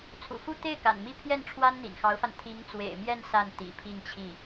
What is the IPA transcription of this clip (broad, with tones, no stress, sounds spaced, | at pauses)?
t͡sʰ ṵ˨˩ f u˥˧ t̪ e˥˩ ɪ̯ k a̰˨˩ n m i˥˧ pʰ j ɛ˥˩ n ʈ͡ʂʰ w a˥ n n̪ ḭ˨˩ n x ɑ˧˥ ʊ̯ f a˧ n t̪ʰ i˧˥ ŋ t͡s w ḛ˨˩ ɪ̯ m j ɛ˥˧ n s a˥˩ n t̪ ḭ˨˩ pʰ i˥˧ ŋ t͡ɕʰ i˥˩